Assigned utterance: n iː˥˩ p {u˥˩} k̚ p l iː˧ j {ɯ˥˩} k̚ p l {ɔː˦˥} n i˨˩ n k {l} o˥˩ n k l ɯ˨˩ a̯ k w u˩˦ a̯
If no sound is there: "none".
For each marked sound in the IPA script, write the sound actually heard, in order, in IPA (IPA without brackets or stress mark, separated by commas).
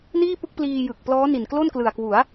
ɯ˥˩, ɯ˨˩, ɔː˦˥, l